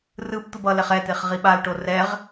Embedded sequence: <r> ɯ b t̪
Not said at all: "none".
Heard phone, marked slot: r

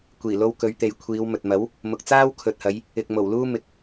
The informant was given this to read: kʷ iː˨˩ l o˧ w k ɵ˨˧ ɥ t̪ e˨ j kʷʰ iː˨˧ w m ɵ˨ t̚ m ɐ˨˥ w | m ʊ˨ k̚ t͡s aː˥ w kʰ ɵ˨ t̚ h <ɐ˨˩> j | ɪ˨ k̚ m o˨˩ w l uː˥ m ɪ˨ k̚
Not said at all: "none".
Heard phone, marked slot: ɐ˨˧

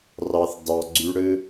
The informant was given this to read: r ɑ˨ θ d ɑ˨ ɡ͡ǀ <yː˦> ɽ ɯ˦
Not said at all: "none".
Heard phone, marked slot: y˦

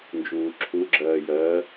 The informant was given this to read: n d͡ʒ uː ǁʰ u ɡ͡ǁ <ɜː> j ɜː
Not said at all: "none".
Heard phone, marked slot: ɜː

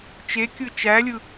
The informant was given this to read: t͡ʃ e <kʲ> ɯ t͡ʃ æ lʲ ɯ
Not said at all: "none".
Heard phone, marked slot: kʲ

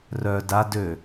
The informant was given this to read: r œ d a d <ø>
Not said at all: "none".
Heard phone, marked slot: ø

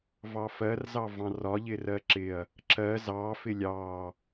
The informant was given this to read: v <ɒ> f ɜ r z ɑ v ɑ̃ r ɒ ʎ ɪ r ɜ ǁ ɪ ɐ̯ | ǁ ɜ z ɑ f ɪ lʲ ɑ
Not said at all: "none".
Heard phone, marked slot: ɑ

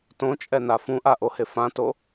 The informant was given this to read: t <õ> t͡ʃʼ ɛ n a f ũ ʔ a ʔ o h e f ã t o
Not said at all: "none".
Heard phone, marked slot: õ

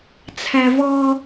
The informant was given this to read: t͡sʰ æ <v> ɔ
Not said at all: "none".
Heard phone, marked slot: v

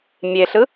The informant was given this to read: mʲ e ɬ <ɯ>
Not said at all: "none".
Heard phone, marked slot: ɯ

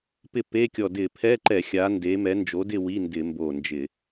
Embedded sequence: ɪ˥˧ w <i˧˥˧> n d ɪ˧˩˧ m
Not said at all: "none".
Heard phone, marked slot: i˧˥˧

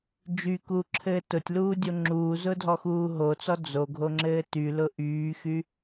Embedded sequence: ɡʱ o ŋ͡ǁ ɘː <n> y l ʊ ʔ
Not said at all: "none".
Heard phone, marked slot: t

